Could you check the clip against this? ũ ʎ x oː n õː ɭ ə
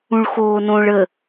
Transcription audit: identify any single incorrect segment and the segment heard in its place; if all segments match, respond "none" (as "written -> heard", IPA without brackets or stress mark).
ʎ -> ɭ